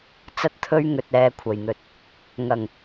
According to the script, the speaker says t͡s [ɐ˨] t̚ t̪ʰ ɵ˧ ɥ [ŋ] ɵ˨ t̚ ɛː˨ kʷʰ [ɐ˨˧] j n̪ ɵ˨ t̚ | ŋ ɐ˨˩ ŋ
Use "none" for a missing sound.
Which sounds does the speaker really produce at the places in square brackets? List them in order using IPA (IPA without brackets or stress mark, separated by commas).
ɐ˧, ŋ, ɐ˨˩